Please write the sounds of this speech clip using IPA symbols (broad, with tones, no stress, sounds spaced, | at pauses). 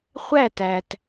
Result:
χʷ æ˦˨ t æ˨ t